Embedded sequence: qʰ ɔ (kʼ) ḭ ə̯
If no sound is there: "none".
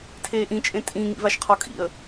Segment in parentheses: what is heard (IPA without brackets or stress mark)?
kʼ